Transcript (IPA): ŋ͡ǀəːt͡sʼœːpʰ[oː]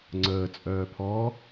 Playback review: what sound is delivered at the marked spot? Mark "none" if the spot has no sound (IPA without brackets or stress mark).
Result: ɔː